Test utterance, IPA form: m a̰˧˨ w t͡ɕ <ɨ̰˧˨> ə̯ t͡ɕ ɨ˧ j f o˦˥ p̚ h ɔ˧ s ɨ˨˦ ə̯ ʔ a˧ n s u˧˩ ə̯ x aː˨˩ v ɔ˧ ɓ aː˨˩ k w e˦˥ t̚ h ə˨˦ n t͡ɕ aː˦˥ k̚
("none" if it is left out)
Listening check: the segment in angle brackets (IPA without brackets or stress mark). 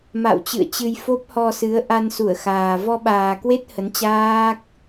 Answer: ɨ̰˧˨